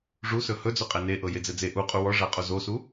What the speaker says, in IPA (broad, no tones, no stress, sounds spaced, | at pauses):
ʐ u s ɵ h ɵ d͡z ɵ qʼ ɛ n e ʔ ɤ j e d͡z ɛ d͡z e ʔ u qʼ u w ɔ ʐ a qʼ o z o s u